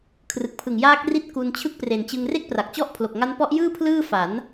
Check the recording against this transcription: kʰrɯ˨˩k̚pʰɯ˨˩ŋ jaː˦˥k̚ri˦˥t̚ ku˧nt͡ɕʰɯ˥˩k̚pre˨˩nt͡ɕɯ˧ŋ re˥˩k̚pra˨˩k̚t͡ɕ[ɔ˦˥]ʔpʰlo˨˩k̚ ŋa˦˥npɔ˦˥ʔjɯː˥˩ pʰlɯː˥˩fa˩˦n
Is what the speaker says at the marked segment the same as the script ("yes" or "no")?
no